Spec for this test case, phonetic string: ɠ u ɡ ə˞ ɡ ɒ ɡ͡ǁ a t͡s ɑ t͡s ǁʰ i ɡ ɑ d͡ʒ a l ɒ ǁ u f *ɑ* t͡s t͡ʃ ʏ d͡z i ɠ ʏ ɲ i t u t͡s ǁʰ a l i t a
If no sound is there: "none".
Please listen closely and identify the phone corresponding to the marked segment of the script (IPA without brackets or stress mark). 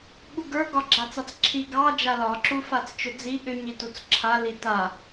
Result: a